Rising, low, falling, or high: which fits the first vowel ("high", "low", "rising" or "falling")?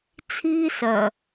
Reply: high